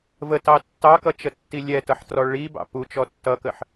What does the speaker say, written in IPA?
v ə t ɑ tː ɑ k ʌ t͡ʃ ə tː i lʲ ɛ t ʌ ħ t r ɔ ɭ i b ɑ̰ p u t͡ʃ ɔ tː ʌ k ə ħ

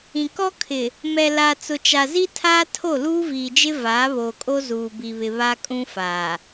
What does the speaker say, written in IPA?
ĩ˨ k ɔ˦ kʰ ɪ˨ | m ɛ˨ l a˨ t͡s ʊ˨ t͡ʃ a˨ z i˦ tʰ aː˦ tʰ o˦˨ l uː˦ v iː˨ d͡ʒ ɪ˦ v aː˨˦ β oː˨ kʼ o˦ z uː˨ b i˨ β ɪ˨ β a˦ kʼ ũ˦ f aː˨

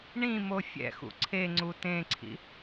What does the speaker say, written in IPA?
ɳ ĩ m o fʲ ɛ̰ x ṵ ǀʰ e ŋ͡ǀ u t ẽ ǀʰ ḭ

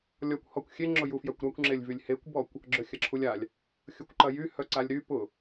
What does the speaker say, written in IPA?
lʲ ɔ kʷ h ɔ kʷ xʲ e ŋ͡ǁ ʊ j u f j œ kʷ ɾ a kʷ ŋ͡ǁ e lʲ v y lʲ h e kʷ b ɔ kʷ | ɡ͡ǁ œ xʲ ɐ ǁʰ u lʲ a lʲ | xʲ ʊ kʷ ǃ ɐ j y h œ ǀ a lʲ ɾ y p ʊ

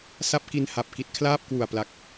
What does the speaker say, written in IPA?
s a˥˩ p̚ k i˧ n h a˨˩ p̚ k i˨˩ t̚ kʰ l aː˥˩ p̚ k w u˨˩ a̯ p l a˨˩ k̚

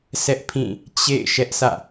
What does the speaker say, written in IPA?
s ɛ˦ ʔ pʰ ĩ˦˨ | t͡ɕ ḛ˦˨ ɪ̯ ʃ ɛ˦ ʔ sʰ ä̰˦˨

